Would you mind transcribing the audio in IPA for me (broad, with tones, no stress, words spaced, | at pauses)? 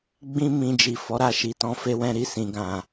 ɡ͡bĩ˦ mĩ˧ d͡ʒi˨fɔ˨˦ɾa˧ ʃi˨tɔ̃˧fe˧wɛ̃˧ ɾi˧sĩ˨ɡã˨